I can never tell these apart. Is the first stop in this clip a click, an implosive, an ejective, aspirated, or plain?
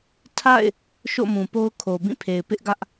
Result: aspirated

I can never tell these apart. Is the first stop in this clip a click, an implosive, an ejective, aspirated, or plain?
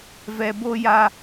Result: plain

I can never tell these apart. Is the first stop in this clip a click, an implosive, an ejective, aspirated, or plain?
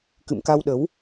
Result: plain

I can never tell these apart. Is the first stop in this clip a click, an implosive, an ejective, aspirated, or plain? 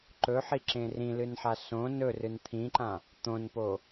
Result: click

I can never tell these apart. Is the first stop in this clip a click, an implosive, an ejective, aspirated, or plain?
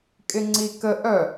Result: ejective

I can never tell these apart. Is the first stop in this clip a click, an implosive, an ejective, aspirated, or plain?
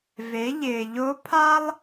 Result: aspirated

